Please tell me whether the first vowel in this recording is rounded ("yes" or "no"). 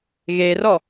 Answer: no